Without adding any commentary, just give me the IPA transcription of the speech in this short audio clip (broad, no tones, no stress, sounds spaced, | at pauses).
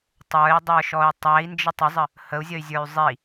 tˤ ə˞ i̯ dˤ ə˞ ʃ ɔ y̯ tˤ æ i̯ n d͡ʒ ə tˤ ə zˤ ə | h ə u̯ zʲ ə y̯ zʲ ə˞ y̯ zˤ i